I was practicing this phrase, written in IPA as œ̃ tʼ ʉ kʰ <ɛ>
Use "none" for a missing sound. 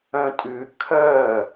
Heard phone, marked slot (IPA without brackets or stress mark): œ